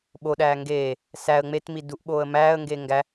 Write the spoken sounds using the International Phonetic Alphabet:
ɓ o ɗ æː ŋ ɡ eː | s æ ə̯ ŋ͡m e t m i d u ʔ ɓ oː ə̯ m æː ə̯ ŋ ɡ eː ŋ ɡ æ

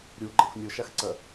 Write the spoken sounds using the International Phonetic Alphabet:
ɾʲ u ɡ͡ǃ ɐ xʷ nʲ o ʃ a x ǀ ɐ

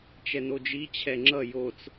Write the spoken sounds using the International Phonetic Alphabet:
t͡ʃ ɛ n o d͡ʒ i t͡ɕʰ ɛ ŋ͡ǁ ʌ j o t͡s

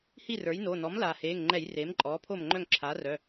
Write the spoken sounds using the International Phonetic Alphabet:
h i˥˨ r ə˞˩˥ j n oː˩˧˩ n ɔ˩˥ m l aː˩ h eː˩˧˩ ŋ ŋ͡ǃ ɛ˧˩˧ j r eː˩˥ m ǃʼ ɔː˩˥ pʰ oː˥˨ m ŋ͡ǃ œ˥˨ ŋ ǁʰ aː˩˥ r œ˩˧˩

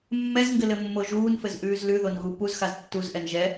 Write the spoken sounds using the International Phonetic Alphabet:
mː ɛ z ŋ ɡ ɘ l ɘ mː o ʒ uː n f ɘ z ʔ ʉː z l ʉ ð o n ɣ u p u z x a z tː u z ʔ ɛ n ʒ ɛ

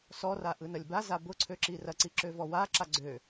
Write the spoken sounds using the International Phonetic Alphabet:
s ɔ r a ʔ ɯ n ɐ lʲ b a z a b ʊ ǀʰ ø ǁ i r ɐ ǀ i ǁ ø v ɔ w a ǁ a ɡ͡ǀ ø

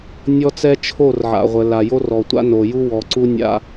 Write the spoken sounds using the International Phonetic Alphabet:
nʲ ɔ˦ t͡s ɛ˦ t͡ʃʰ o˦˨ r ʕ a̰˨ ʁʷ ə˨ l a˨ j o˦ r ɔ˨ tʷ a̰˦ n o˨ j u˦ w ɔ˨ ǀ u˦ nʲ a̰˦

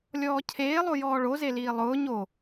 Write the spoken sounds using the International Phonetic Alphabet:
lʲ ɔː cʰ eː lˠ o j ɔː ɭ o z e l iː lˠ ʊː ɲ o

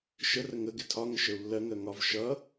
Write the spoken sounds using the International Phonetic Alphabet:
ʃ ə r ə ŋ ə ɡ ɪ tʰ ɒ ŋ ə ʃ ə u̯ lː ɜ ŋ ɜ ŋ ɒ v ʃ ʌ

